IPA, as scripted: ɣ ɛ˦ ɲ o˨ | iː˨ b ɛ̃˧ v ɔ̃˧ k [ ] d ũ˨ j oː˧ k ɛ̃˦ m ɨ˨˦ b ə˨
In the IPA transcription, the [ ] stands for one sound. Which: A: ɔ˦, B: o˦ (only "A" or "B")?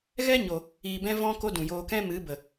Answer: B